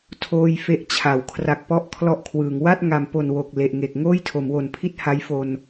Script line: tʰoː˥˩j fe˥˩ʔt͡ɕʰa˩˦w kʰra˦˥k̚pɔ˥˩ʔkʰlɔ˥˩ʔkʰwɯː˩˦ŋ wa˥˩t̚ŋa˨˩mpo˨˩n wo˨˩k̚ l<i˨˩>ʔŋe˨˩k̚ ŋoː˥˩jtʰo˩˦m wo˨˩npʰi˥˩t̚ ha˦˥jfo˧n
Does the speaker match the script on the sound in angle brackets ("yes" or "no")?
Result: no